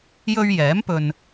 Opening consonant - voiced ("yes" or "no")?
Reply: yes